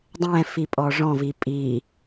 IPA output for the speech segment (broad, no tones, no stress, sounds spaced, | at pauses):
dˤ ɛ̃ f i pʼ ɔ ʐ ɔ̃ v i pʼ i